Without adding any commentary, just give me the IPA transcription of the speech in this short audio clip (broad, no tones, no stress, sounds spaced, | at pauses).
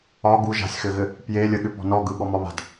ɒ ɡ u ʒ a̤ sʲ x ɘ ɣ ɘ | p j e lʲ ə ɠ ʏ p ɔ̤ n ɔ ɡ ɯ ɠ ɔ m ɒ β a̤ d